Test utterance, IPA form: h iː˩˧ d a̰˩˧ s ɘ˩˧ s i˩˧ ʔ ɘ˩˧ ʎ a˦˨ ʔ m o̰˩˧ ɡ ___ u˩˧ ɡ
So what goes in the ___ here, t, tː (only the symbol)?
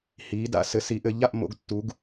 tː